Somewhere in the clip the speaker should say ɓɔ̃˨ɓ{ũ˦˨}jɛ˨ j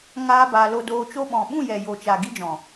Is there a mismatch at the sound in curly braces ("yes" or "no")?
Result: no